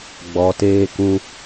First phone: ɡ͡b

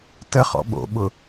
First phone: t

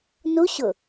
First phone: n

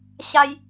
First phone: ɕ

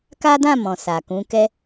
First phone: k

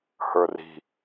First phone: h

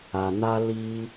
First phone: a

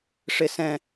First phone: ʂ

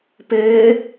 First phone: p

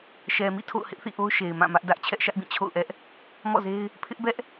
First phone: ʃ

